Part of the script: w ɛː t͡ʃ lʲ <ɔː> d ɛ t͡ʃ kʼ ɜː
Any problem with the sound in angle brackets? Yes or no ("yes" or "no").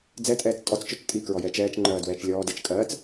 no